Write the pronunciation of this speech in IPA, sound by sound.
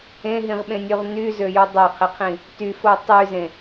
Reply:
ẽ ɦ ĩ ʁ ɓ ẽ nʲ ʉ ʁ n y z ø j u dˤ e qʰ i qʰ ĩ | t y f o tˤ y z ẽ

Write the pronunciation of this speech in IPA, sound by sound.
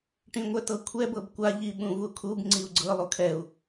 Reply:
ʈ ĩ ŋʷ ɛ t ɤ kʷʰ ɛ b ɤ b kʷ a ʎ i ɓ ũ v u kʰ u b ŋ͡ǀ i u̯ ɡ͡ǀ ɤ lˠ u kʰ ɛ u̯

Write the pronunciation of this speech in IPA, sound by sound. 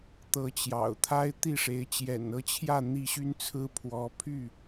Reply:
t̪ ɤ˨˦ t͡ɕ j ɑ̰˨˩ ʊ̯ t̪ʰ a˦ ɪ̯ t̪ i˥˨ ʂ e˨˦ ɪ̯ t͡ɕ j ɛ̰˨˩ n ɤ˦ t͡ɕʰ j ä˥˨ n̪ i˦ ɕ y˦ n t͡sʰ ɹ̩˦ pʰ w ɔ˨˦ pʰ y˥˨

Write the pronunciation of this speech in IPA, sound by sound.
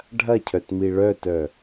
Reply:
ɖʱ ɐ cʰ œ t m i ɭ œ t œ

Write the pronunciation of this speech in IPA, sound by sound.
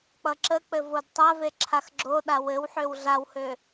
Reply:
k͡p ʌ ǁ ə k͡p ɘ v o d tˤ a v e ǁʰ a x ɡ͡ǁ o ɗ a w ɘ w ħ ø w ɮ a w h ø

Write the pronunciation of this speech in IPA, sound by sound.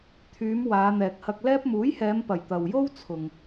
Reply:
t̪ʰ yː˨˧ m w aː˨˧ n̪ ɛː˨ k̚ h ɐ˧ k̚ l ɛː˥ p̚ m uː˨˥ j h ɛː˨˧ m p ɐ˨˩ j t̪ ɐ˨ w j o˥ w t͡sʰ ʊ˨ ŋ

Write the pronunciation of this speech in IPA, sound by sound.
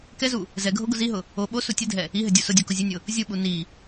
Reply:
k ɛ z u | z ɛ ɡʱ o ɡ ʊ z i ɦ ʊ | o ɓ o s u tʲ ɘ dʱ ɛ | i ɦ ɘ dʲ u s ʊ dʲ u k ʊ zʲ ɘ nʲ ʊ | zʲ u ɓ u n i

